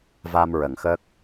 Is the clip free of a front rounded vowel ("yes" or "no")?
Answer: yes